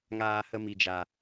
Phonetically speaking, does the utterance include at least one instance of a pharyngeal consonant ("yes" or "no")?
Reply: no